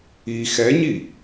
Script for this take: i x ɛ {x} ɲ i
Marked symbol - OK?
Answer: no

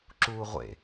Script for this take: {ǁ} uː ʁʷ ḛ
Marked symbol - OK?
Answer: yes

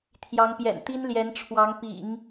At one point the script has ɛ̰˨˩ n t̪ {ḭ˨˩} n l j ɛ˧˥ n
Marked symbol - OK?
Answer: no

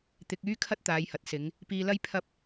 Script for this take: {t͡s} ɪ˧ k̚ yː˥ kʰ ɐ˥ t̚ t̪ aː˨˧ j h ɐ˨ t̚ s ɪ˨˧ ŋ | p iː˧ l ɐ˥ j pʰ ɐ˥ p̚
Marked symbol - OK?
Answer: no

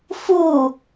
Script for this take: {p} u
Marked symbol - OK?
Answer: no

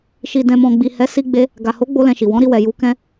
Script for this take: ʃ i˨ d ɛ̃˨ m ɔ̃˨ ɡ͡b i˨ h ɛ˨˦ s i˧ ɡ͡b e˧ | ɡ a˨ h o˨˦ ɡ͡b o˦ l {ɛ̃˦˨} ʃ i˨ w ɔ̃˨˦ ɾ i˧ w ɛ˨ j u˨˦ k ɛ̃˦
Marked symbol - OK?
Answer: no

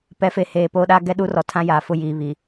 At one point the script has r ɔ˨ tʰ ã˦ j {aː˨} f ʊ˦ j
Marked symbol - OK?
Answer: yes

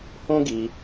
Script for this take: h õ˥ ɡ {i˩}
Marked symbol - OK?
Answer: yes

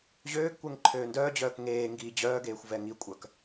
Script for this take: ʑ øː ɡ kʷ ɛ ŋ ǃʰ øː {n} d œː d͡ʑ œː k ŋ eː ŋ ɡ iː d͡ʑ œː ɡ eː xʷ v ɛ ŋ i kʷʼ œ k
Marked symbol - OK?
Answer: yes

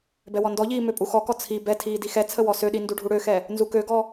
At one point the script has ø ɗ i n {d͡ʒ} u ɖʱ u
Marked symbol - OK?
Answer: no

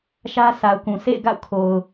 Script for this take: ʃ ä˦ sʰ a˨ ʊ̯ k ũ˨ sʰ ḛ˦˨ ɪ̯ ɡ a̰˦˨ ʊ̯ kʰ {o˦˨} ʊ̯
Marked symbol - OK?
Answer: no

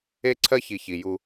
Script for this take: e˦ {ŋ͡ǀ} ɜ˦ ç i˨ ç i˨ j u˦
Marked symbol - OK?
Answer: no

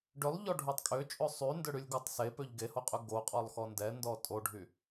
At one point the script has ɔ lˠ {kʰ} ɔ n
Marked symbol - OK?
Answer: no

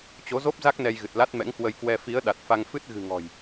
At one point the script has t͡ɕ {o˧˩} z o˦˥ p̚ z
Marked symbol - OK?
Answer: no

